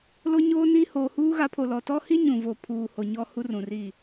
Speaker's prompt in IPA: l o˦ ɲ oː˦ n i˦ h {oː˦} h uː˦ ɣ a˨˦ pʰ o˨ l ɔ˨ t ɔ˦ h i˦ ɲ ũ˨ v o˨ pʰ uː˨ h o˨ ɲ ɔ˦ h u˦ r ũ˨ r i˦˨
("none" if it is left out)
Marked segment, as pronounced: oː˨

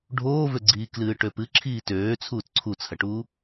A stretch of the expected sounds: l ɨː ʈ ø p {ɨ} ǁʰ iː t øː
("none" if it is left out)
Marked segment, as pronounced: ɨ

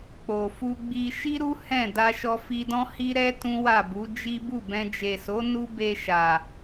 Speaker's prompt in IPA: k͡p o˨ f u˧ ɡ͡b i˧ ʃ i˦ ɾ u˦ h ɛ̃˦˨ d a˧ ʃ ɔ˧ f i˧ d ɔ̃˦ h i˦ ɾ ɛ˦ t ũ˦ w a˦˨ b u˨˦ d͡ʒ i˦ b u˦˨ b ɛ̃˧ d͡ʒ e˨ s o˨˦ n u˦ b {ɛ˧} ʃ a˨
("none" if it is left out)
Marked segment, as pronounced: e˧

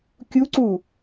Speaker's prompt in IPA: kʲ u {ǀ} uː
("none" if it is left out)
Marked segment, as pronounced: ǀ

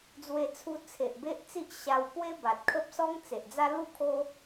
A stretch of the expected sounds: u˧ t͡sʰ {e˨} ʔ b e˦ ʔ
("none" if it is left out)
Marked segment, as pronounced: e˨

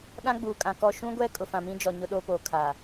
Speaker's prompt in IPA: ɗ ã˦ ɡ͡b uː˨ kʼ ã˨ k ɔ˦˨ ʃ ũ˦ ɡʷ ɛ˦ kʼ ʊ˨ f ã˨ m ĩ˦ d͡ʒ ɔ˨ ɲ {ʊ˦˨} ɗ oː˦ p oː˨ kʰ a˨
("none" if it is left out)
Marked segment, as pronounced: ʊ˦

